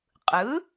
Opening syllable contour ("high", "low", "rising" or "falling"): rising